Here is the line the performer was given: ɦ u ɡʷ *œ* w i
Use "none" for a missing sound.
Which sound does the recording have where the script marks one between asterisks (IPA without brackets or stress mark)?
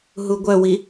œ